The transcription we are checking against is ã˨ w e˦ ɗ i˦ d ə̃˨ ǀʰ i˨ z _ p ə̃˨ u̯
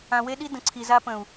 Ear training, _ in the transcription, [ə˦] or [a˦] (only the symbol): a˦